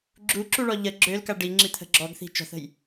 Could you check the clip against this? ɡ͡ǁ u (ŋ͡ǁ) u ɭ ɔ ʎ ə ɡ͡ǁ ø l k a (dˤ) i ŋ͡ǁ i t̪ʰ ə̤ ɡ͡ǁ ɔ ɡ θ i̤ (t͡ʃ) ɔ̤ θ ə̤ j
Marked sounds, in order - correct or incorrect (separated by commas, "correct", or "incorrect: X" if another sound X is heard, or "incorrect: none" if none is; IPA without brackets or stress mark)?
incorrect: ǁ, incorrect: ɖ, correct